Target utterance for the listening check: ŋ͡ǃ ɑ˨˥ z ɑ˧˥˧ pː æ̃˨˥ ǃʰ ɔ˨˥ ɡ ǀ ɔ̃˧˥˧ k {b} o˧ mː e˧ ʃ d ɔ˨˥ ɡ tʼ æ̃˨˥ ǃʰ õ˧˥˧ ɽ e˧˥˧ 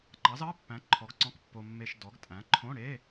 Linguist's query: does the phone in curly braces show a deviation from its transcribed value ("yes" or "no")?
yes